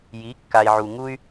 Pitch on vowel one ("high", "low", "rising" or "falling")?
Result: rising